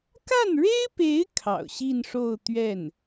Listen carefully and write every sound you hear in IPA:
k a˥˩ n ɻ e˥ ɪ̯ p e˧˥ ɪ̯ kʰ ɑ̰˨˩ ʊ̯ ɕ i˥˧ n ʂ o˥˧ ʊ̯ t̪ ɥ ɛ˥˩ n

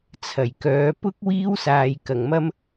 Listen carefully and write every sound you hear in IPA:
t͡sʰ ɐ˨˩ j k œː˨˥ p ʊ˥ k̚ w iː˥ w s aː˨ j k ɐ˨˩ ŋ m ɐ˥ m

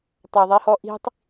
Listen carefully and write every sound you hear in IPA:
tˤ a ðˤ i h ɔ ʔ i̤ tˤ

